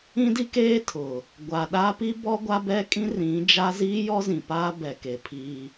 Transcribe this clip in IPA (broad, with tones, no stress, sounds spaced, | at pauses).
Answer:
ĩ˦ d i˦ k eː˦ tʰ ʊ˨ | ɡʷ a˨ ɗ a˦ p i˦ b ɔ˦ ɡʷ a˦ b ɛ˦ kʼ ĩ˦ r ĩ˨˦ d͡ʒ a˦ z iː˦ j ɔ˦ z ĩ˨ p aː˦ b ɛ˨ k e˨ pʰ iː˦